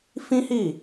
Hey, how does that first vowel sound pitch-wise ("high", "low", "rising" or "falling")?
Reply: high